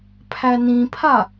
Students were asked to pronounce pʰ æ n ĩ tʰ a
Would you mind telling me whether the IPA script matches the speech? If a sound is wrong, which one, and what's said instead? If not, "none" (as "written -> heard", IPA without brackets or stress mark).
tʰ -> pʰ